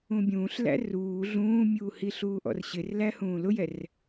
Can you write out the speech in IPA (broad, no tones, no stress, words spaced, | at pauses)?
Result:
ũbʲũːɬlæ̰ ruː ɮũːmʲuː hiɬuːʔɔ̰rɕɪr læhũːlʊjɛr